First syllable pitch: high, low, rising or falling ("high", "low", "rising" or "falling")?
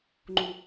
low